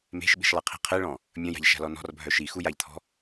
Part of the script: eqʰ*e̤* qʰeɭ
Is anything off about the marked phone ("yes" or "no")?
yes